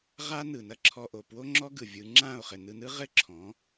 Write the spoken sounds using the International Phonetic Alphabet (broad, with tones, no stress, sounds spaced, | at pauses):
ʁ a˦ n ɯ˨ n ɐ˦ ǁʰ ɔ˧ ʔ o˨ p w o˦ ŋ͡ǁ ɔ˦ ɡ ɯ˨ vʲ ɯ˨˦ ŋ͡ǁ ã˦˨ o̯ χ ɘ˨ n ɯ˧ n ɯ˦ ʁ ɘ˦ ǁʰ ɔ̃˨˦